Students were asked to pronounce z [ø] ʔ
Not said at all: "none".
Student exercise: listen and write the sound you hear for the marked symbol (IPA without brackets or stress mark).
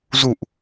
u